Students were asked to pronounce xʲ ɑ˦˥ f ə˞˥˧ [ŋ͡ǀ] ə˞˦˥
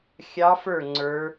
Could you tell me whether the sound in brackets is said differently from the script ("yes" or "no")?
no